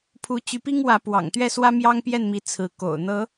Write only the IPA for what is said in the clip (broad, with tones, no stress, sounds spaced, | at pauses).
pʰ u˨˦ t͡ɕ y˨˦ p i˦ ŋ w ä˨˦ p w ɑ̰˨˩ ŋ t̪ ɥ ɛ˥˨ s w ä˦ m j ɑ˦ ŋ p j ɛ˥˨ n m i˨˦ t͡sʰ ɹ̩˨˦ k o̰˨˩ ʊ̯ n̪ ɤ˨˦